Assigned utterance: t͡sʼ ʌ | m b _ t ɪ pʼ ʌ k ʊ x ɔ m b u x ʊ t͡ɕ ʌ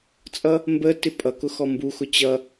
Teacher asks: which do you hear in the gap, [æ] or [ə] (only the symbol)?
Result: ə